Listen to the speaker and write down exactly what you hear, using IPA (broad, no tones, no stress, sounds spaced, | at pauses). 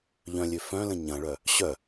ʎ œ̃ lʲ ø f œ̃ l ə̃ ɲ ɐ̃ ɭ œ | ɕ œ